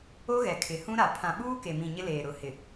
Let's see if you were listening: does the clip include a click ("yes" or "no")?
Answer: no